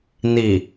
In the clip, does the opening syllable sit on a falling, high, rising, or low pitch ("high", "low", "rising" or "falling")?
low